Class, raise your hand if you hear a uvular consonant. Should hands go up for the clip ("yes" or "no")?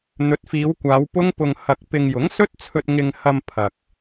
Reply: no